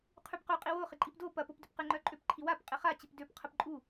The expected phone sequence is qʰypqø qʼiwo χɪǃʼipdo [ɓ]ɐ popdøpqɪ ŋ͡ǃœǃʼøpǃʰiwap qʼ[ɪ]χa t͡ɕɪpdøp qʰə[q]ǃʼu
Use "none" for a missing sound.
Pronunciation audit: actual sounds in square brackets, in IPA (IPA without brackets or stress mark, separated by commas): p, ɪ, p